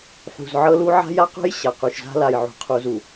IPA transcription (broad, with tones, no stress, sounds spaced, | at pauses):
ħ ṳ˨ z ʕ ɤ˦ l u˦ ʕ a̤˦ j a˦ q ṳ˦ j ɕ a˨ q u˨ ʃ z a̤˦ l a˨ j ʕ ṳ˨ qʰ u˨ z u˨